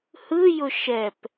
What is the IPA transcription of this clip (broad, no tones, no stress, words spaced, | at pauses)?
hɯjʊ ʃɛp